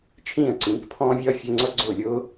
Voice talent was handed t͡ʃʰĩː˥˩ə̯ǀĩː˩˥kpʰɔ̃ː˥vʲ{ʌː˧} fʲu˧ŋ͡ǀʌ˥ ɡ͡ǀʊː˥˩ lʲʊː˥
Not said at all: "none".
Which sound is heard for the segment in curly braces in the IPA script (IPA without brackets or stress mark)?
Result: ʌː˥